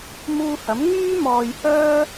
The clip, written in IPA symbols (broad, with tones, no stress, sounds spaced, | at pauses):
m uː˧ h ɐ˨˥ m ŋ yː˥ m ɔː˧ j h œː˥